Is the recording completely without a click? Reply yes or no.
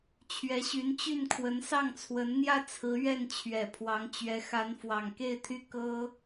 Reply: yes